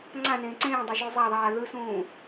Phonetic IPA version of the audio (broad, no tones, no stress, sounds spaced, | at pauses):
ŋ͡ǀ ã n ẽː ǀ ẽː dˤ a ʒ u zˤ a ðˤ aː ð ɯ s ũː